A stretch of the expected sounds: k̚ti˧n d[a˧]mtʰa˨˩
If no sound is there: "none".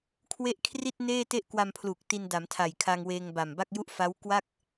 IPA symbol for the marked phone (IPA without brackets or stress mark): a˩˦